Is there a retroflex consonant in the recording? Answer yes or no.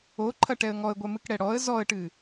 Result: yes